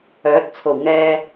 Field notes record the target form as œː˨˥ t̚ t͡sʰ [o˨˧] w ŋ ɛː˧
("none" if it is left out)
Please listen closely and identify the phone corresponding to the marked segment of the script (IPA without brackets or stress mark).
o˨˩